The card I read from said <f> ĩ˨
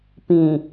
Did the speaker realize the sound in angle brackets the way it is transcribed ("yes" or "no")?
no